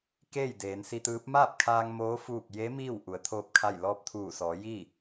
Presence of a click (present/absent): absent